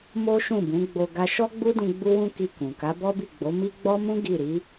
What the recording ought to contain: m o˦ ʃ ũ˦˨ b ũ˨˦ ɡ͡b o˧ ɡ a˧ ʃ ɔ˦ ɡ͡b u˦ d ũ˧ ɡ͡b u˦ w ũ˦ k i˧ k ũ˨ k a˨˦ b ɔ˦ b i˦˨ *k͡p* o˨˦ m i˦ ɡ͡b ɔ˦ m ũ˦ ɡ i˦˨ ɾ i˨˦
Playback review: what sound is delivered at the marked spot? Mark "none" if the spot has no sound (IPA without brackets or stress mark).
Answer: ɡ͡b